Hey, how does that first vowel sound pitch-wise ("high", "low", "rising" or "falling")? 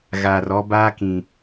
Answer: low